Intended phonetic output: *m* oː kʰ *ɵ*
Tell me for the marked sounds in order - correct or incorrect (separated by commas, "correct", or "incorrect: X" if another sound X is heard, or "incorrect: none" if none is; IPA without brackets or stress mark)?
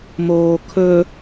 correct, correct